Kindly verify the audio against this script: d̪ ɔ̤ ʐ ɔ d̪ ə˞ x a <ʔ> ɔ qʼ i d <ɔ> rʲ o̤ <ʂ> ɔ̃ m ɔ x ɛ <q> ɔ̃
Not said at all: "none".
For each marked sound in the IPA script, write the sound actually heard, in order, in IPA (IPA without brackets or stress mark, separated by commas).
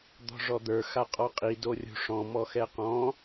qʼ, o, ʂ, q